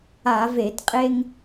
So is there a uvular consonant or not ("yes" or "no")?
yes